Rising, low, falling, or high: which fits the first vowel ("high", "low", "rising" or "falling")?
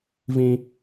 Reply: low